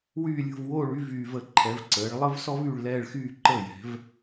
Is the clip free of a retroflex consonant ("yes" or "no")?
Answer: no